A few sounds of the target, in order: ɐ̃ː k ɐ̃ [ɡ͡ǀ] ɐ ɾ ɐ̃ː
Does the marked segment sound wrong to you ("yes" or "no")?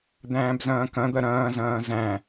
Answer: yes